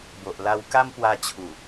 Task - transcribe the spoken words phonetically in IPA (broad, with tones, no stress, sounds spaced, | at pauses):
b o˨ ʔ l a˧ w k a˦ m p w a˧ t͡ɕʰ u˨˩